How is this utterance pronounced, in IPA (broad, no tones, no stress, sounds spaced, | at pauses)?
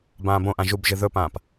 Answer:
b ãː b õ ʔ ã ʒ u b ʒ ɨ ð ɵ p ãː p